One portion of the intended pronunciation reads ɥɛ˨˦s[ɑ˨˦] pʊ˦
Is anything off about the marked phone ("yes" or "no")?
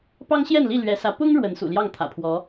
yes